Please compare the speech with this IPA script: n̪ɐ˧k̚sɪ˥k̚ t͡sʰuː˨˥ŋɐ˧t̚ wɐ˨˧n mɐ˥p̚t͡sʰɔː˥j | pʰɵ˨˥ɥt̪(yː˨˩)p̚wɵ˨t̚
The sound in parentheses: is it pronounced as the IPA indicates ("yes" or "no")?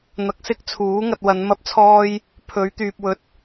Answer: no